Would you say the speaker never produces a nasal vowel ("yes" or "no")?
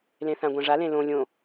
no